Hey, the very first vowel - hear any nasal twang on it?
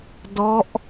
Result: no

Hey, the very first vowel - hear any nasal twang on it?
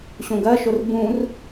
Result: yes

